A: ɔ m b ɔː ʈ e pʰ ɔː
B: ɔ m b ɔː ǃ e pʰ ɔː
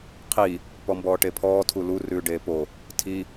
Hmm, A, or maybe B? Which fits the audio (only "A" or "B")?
A